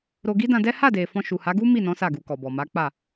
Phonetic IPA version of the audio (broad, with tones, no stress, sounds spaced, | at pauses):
ɾ o˧ ɡ i˦ d ã˧ d ɛ˦ h a˦˨ d e˨ f ɔ̃˧ ʃ u˨ h a˨˦ ɡ u˦ m i˦˨ n ɔ̃˨˦ s a˦˨ ɡ u˧ k ɔ˨ b ɔ˨ m a˨˦ k͡p a˦˨